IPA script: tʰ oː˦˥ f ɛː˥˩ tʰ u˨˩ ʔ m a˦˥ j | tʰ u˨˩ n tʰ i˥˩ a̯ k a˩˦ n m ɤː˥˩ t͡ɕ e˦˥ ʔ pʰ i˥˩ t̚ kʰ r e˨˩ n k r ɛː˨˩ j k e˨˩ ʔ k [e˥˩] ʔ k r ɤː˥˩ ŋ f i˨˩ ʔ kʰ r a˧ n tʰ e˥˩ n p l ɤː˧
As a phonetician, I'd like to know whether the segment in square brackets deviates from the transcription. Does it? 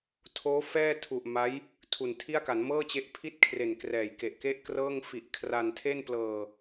no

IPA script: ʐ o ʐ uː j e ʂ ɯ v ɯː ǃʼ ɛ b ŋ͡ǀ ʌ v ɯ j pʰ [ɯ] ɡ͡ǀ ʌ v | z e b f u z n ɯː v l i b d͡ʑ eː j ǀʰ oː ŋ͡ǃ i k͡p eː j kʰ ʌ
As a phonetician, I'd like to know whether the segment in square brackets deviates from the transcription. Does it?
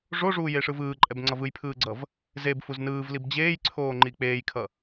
yes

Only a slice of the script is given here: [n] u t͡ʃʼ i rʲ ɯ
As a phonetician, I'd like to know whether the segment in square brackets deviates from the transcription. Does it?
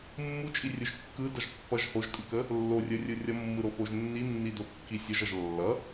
yes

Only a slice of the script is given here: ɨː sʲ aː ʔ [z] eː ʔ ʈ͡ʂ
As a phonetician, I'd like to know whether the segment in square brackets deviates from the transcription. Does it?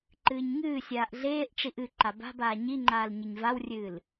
yes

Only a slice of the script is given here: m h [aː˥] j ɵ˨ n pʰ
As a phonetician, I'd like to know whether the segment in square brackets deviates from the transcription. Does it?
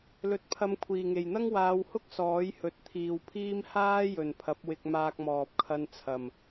no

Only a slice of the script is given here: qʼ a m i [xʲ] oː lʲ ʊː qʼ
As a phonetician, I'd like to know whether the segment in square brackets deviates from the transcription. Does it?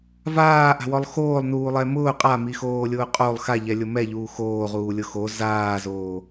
yes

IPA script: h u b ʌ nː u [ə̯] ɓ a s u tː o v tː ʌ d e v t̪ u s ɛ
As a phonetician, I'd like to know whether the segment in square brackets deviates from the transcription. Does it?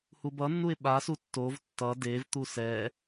yes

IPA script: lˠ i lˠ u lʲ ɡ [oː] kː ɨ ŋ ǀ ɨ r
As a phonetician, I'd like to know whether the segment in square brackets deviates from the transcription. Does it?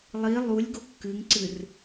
yes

